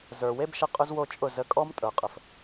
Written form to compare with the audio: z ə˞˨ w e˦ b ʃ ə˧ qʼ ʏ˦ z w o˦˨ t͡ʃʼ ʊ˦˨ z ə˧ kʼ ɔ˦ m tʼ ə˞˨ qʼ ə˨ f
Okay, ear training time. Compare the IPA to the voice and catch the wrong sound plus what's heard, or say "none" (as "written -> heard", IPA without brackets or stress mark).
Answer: none